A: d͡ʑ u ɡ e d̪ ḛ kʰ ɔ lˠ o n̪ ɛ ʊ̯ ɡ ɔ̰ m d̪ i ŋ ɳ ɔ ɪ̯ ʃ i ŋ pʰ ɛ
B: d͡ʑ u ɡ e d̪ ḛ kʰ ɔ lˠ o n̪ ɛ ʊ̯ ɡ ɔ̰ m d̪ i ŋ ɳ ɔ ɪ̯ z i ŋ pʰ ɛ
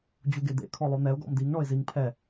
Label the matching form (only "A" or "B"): B